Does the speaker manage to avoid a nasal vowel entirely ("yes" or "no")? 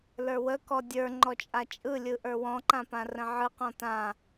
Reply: no